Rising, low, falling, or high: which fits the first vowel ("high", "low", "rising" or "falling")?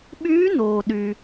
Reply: rising